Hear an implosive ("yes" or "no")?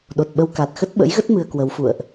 yes